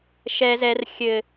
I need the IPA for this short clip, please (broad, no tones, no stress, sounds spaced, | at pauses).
ʃ ɛ z ɛ r xʲ ɘ